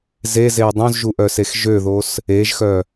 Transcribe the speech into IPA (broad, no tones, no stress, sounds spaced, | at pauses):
z e z e ə̯ dˤ õ z ʒ u ʔ œ s e x ʒ ø ð o s | e ʒ x œ